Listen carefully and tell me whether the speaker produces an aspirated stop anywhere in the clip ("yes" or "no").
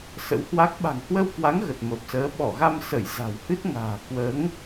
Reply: no